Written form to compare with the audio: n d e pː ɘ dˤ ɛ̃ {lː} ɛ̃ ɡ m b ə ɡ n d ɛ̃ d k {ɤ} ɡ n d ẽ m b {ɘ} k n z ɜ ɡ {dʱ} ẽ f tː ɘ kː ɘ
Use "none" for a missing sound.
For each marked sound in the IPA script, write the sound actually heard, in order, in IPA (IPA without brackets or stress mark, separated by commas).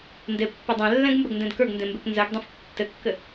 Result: lː, ə˞, e, dˤ